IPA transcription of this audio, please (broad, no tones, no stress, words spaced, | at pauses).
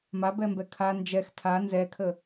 mabɛmbɛ kʰa nd͡ʒɛx tʰa nzɛkʰə